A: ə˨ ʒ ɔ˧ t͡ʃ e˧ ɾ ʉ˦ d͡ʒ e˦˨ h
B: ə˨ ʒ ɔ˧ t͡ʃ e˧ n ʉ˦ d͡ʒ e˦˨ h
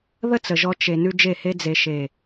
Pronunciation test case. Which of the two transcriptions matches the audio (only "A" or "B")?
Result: B